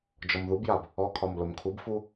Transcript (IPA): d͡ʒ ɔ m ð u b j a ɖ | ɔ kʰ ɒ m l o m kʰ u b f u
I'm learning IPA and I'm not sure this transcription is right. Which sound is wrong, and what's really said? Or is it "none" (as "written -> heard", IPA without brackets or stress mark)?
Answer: ɖ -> b